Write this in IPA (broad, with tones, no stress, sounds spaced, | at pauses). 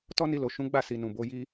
t ɔ˦ n i˧ l o˨ ʃ ũ˨˦ ɡ͡b a˦˨ s i˨ n ũ˨ b o˨˦ j i˦